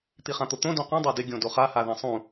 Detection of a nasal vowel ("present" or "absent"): present